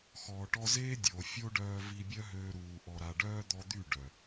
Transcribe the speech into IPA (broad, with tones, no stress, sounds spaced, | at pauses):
x ɔː˨ ʈ ɔ˧ z eː˦ dʲ o˨ fʲ o˦ ɖ œː˧ v i˧ bʲ œ˦ ɦ øː˧ ɾ uː˨ ʔ ɔ˨ ɾ a˨ ɖ œː˦ d̪ ɔ˧ d̪ y˦˨ ɖ œ˨